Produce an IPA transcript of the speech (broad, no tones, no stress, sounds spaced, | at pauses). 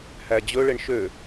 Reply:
h æ d͡ʑ ɵ ɭ e ɳ ʃ ø